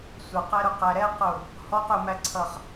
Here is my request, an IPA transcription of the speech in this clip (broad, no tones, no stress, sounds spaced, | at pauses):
sʷ ə q ɛ ɾ ʊ q æ ɾ ɛ q ʊ | h ɔ q ʊ m æ ǀʰ ʌ χ